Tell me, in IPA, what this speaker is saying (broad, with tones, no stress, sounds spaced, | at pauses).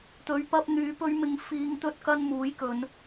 t̪ ɵ˨˧ ɥ p ɐ˧ p̚ n̪ yː˨˧ p ɵ˧ ɥ m ɪ˨ ŋ f iː˨ ŋ t̪ ɵ˧ t̚ k ɐ˧ n m uː˨˥ j k ɵ˨˧ n